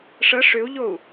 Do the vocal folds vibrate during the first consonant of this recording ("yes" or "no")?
no